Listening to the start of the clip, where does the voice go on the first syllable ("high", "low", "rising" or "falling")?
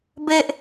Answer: high